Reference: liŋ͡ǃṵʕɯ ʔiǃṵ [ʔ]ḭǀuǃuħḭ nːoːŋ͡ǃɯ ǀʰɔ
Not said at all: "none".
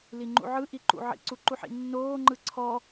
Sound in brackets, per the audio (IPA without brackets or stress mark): ʕ